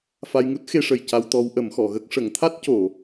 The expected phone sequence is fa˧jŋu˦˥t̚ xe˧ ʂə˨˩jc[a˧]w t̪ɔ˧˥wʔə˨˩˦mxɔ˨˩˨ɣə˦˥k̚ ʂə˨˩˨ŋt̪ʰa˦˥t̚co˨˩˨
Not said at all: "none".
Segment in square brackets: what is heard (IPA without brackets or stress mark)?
a˧